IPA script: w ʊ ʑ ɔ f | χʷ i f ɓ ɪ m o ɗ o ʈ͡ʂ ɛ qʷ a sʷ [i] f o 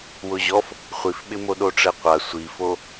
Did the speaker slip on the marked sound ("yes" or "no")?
no